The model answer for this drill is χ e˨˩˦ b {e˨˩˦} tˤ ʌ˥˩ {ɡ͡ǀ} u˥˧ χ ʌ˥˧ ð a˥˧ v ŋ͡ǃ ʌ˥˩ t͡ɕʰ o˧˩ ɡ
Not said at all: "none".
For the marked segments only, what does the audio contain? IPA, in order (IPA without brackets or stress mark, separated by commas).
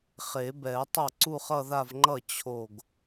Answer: ɛ˨˩˦, ǀ